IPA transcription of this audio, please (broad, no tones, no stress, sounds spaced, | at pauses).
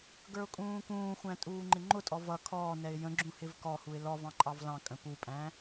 ɡ ə˞ ʊ̯ kʼ ũː k ũː xʷ æ̃ tʼ uː ŋ͡ǃ ɪ ŋ͡ǃ ʊ tʼ ɔ v ʌ kʰ ɔː n ɛ ɪ̯ j ə̃ ɡ͡ǁ ũ h ɪ v k ɔ h u ɪ̯ l ɔ v ɑ̃ ǃʼ ɑ v l ɑ̃ kʼ ə̃ p u pʼ æ̃